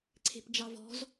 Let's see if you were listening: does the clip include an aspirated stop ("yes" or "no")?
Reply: yes